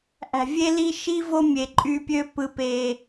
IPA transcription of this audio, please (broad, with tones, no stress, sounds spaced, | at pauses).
ʔ æ̤˨ vʲ e˦ l i˦ ʃ i˦ v o˦ mʲ e˨ ǃʼ y˦ pʲ ø˦ p ɯ˦ p e˦